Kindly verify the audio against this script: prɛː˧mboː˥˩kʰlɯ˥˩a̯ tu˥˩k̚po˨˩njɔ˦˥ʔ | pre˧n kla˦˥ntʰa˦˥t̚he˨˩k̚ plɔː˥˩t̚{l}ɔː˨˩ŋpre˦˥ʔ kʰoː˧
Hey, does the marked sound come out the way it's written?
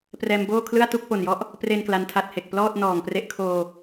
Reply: no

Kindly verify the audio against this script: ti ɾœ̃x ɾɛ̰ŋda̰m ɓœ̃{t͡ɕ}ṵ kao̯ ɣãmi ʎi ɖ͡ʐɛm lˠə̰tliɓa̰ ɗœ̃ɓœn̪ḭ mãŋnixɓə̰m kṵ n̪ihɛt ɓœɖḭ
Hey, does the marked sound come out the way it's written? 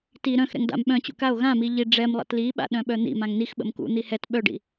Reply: yes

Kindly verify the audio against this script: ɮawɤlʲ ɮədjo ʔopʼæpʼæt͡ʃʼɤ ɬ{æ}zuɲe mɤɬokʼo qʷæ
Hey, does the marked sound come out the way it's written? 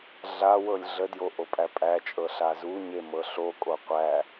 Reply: no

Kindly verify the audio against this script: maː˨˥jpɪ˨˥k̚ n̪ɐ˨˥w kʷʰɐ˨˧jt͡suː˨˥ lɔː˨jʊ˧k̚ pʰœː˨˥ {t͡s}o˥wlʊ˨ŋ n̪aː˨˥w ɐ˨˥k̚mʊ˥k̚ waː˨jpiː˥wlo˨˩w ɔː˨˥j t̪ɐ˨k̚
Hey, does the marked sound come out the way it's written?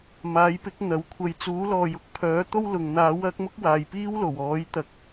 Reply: no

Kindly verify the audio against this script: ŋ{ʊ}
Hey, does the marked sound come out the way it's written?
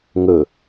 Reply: no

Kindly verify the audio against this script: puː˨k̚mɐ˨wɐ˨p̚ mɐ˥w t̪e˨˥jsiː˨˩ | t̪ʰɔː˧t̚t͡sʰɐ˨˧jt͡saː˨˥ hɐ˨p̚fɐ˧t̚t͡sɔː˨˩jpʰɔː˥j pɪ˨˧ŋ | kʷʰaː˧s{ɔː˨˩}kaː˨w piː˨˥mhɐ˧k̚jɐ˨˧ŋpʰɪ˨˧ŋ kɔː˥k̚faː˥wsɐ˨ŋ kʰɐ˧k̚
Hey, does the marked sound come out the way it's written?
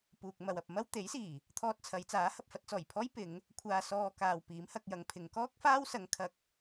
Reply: no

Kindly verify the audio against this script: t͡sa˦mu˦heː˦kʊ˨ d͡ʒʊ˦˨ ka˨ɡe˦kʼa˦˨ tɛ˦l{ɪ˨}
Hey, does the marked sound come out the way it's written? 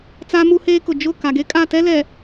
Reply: no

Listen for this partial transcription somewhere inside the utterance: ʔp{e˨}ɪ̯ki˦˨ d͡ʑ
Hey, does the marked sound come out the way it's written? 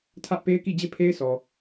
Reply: no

